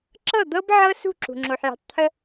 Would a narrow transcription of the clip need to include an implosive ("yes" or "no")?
no